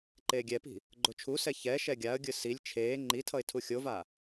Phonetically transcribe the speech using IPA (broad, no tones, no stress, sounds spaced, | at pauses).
ǃ eː ɡʲ ɛ p i̤ | ɡ͡ǃ o t͡ʃʰ u s ɛ ç ɛ ʃ ɛ ɡʲ a ə̯ ɡʲ ɯ s i lʲ t͡ʃʰ eː ŋ͡ǃ i tʰ ʌ ɪ̯ tʰ u xʲ o v a